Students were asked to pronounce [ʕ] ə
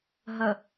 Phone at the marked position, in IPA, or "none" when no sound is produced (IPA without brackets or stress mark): ɦ